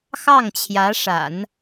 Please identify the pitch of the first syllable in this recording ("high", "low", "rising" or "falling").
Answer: falling